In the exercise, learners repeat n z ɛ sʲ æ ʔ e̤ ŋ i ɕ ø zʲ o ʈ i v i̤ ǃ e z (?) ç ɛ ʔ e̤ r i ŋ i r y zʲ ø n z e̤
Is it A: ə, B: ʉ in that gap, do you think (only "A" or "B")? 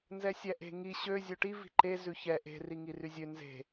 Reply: B